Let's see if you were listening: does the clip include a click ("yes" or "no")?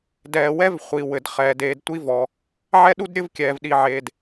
no